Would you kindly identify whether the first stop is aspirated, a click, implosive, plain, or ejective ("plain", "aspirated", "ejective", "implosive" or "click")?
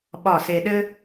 implosive